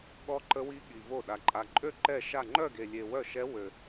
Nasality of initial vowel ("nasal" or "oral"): oral